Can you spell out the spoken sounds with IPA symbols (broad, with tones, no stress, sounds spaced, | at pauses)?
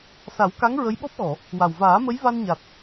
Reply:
s a˨˩˦ w k a˧˥ ŋ ɹ ə˧˥ j ɓ ɔ˦˥ p̚ ɣ ɔ˨˩˨ | w a˨˩ w v aː˨˩˦ m ə˧˥ j v a˧ n ɲ a˨˩ t̚